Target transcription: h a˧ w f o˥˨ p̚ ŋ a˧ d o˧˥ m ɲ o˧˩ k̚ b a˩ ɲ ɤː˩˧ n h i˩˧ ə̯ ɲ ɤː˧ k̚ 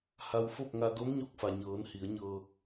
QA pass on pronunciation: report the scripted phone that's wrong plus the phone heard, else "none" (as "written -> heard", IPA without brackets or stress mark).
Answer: b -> f